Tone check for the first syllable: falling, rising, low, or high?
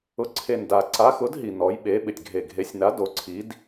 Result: rising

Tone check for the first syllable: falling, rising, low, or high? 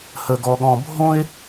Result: high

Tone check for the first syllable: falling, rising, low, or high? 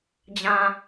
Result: low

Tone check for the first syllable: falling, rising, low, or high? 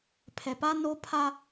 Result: low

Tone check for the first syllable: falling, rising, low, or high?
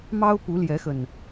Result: high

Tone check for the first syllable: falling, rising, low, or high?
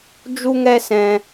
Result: high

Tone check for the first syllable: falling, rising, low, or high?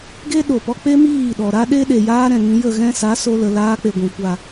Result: high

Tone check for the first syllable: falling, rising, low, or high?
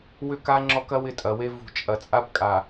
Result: falling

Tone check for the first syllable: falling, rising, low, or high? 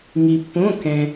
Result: low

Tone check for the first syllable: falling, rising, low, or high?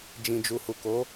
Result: low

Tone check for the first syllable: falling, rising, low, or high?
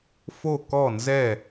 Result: falling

